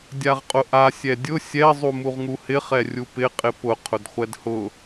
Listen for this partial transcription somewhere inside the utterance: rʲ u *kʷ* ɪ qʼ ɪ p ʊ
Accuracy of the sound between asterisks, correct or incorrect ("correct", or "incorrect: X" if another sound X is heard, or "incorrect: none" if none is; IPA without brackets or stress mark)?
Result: incorrect: p